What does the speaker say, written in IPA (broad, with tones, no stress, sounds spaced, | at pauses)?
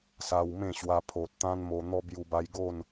s a˧ w m ẽ˥˧ ɕ w a˧ pʰ o˨ t̚ t̪ ã˦ n m o˧ n̪ ɔ˦ b j u˧ b a˧ j ɡ o˥˧ n